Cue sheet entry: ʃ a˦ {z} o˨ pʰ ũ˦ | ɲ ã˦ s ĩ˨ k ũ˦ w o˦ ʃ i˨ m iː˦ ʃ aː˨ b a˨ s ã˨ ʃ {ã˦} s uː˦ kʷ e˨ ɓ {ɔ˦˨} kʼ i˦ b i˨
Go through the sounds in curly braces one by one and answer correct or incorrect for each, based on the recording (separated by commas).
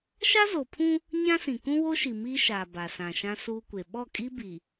correct, correct, correct